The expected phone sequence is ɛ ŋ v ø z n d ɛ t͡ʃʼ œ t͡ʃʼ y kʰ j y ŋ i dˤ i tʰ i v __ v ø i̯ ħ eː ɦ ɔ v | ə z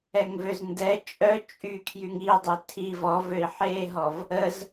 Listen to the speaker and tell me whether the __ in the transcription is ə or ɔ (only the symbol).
ɔ